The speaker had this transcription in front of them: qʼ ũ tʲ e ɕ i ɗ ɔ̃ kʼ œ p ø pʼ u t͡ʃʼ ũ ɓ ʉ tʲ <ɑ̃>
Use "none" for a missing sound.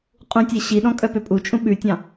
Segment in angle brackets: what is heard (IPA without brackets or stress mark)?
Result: ɑ̃